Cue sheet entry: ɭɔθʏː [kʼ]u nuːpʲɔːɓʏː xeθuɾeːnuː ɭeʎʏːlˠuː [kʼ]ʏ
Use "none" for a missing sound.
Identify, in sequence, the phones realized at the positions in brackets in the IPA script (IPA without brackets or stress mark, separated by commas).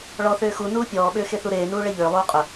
x, qʼ